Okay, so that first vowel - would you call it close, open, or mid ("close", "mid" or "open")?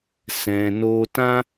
mid